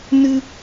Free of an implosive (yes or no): yes